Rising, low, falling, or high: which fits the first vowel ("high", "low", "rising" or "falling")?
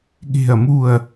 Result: falling